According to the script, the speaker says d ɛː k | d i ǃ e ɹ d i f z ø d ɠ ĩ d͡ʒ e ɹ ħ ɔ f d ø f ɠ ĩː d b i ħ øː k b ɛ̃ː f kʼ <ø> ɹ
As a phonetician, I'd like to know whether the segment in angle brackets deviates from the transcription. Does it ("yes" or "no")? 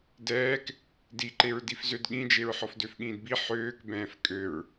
no